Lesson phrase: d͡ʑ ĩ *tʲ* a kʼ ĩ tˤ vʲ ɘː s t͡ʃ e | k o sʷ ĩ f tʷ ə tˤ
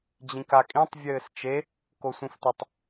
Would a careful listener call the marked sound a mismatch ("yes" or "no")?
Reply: yes